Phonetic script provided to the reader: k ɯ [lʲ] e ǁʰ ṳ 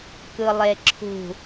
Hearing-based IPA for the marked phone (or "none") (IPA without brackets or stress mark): lˠ